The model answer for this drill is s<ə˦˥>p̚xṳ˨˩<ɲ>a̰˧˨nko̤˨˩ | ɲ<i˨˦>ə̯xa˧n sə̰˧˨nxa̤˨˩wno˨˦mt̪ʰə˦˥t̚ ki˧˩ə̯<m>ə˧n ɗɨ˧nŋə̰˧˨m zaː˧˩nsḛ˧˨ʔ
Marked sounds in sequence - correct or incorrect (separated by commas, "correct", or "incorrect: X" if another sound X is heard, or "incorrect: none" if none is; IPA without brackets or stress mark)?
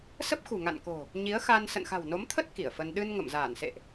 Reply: correct, incorrect: ŋ, correct, incorrect: f